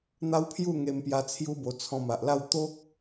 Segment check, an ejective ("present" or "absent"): absent